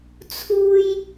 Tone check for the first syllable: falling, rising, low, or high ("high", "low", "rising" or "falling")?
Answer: high